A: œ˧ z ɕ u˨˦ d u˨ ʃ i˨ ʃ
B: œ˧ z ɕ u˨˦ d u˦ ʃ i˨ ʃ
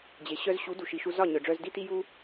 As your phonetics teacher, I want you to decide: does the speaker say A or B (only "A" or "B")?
A